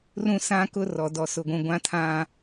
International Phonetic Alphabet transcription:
r ũ˦ s ã˦ k ʊ˦ r ɔ˨ d ɔ˨ s ʊ˨ ɡʷ ũ˨ ɡʷ ã˦ tʰ ã˦

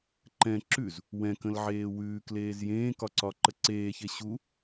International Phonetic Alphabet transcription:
ǃ ɛ̃ ǁ ʉ z | w ɛ̃ k ə̃ l ʕ eː w ʉː k l eː z j ẽː k ɒ ǀ ɒ ǃ ə ǀ eː ç e ɕ u

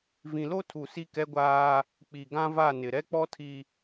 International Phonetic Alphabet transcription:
v ĩ˨ l o˦ tʰ u˨ s i˦ k ɛ˦ ɡʷ aː˦ | k͡p i˨ ɡ ã˦ v a˦˨ n ɪ˨ ɾ ɛ˦ k͡p ɔ˦ tʰ i˦

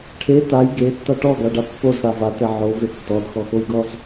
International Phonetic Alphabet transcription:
ʈʰ e t a j ɡ e tː a ʈ ɔ ɡ a ɖ a pː o z ɽ a v a t ɛ ʕ o v e tː ɔ d x ɔ x o j ɡ ɔ z

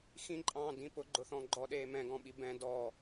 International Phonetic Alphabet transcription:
x ĩ ǃʼ ɑ̃ː d ĩ p ʊ ɡ͡ǃ ʊ θ ɔ̃ ɡ͡ǃ ɔ ɗ eː m ɛ̃ ɡ ɔ̃ ɓ i b ɛ̃ d ɔ

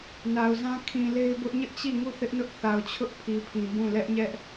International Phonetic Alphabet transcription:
n a˨ ʊ̯ z ã˦ kʰ ĩ˨ l e˦ ɪ̯ b ʊ˦ ʔ ɲ ɪ˦ ʔ t͡ɕ i˦˨ ŋ u˦˨ θ ɪ˦ ʔ n ʊ˦ ʔ θ a˨ ʊ̯ t͡ɕʰ ʊ˦ ʔ pʰ i˨ pʰ ĩ˨ b ũ˦˨ l ɛ˦ ʔ ɲ ɛ˦ ʔ

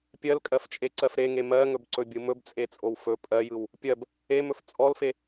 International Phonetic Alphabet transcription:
pʲ ɜ l kʼ ɜ f t͡ʃʼ e ǀ ɜ f ɾ e ŋ e m ɜ ŋ ɵ b ǀ ɵ bʲ ɯ m ɵ b t͡sʼ e t͡sʼ o w f ɵ pʼ ɜ j ɯ w | pʲ ɜ b | e m ɵ f t͡sʼ ɔ l f e

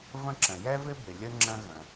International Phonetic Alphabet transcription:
v ə̃˦ ǁ ə̃˩ j ɛ˥ v ɪ˥ b ɪ˩ lʲ ə˥ ŋ͡ǁ ə̃˦ ɣ ə̃˩

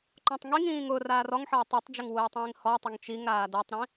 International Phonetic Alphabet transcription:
ǃ ɔ̃ tˤ ŋ i ŋ ĩː ŋ ʊː r aː r ɔ ŋ ħ ʌː tˤ i tˤ d͡ʒ ʊ ŋ w ʊː tˤ ĩː ŋ h ɔ tˤ ʊ ŋ t͡ʃ i ŋ ɾ aː d ʌ tˤ ɾ ĩ

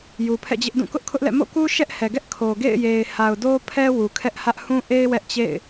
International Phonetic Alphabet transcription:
j u˨ pʰ ɛ̰˦˨ d͡ʑ ɪ˦ ʔ d ũ˦˨ k ʊ˦ ʔ kʰ ʊ˦ ʔ l ɛ̰˦˨ m o̰˦˨ k u˦ ʃ ɛ˦ ʔ h ɛ˨ ɡ ɛ˦ ʔ kʰ o˨ ɡ ḛ˦˨ ɪ̯ j e˨ ɪ̯ h a˨ ʊ̯ d o˦ pʰ ɛ˦ w u˨ kʰ ɛ˦ ʔ h ä˦ ʔ h ũ˦ ʔ e˦ ɪ̯ w ɛ˦ ʔ t͡ɕ ḛ˦˨ ɪ̯

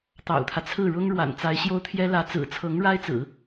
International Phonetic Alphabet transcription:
t̪ ɑ̰˨˩ ʊ̯ t̪ʰ ä˦ t͡sʰ ɹ̩˥˩ ɻ ʊ˥ ŋ ɻ w a̰˨˩ n t͡s a˧˥ ɪ̯ ɕ j o˥ ʊ̯ t̪ʰ j ɛ˥ l ä˧˥ t͡s ɹ̩˨˩ t͡sʰ ɤ˧˥ ŋ ɻ a˥ ɪ̯ t͡s ɹ̩˨˩˦

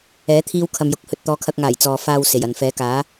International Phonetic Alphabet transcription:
ɛː˨˥ t̪ʰ iː˥ w kʰ ɐ˧ m j ʊ˨˥ k̚ h ɵ˨ t̚ t̪ ɔː˨˧ kʰ ɐ˧ k̚ ŋ aː˨˩ j t͡s ɔː˨ f aː˧ w s e˨˩ j ɐ˨ n f ɛː˨˥ k aː˨˥

